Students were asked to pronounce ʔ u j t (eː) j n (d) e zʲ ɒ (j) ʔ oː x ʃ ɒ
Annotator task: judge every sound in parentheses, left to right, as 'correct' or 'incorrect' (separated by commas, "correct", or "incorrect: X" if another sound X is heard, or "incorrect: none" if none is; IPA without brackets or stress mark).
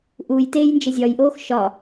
correct, incorrect: d͡ʒ, correct